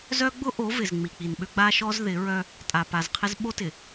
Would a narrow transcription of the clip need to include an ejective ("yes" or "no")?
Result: yes